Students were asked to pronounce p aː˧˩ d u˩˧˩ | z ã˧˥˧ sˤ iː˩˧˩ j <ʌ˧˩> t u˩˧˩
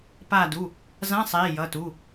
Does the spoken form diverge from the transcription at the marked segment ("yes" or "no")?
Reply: yes